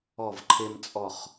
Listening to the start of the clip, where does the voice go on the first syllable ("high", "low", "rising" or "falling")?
falling